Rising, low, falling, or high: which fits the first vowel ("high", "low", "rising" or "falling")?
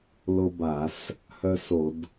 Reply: high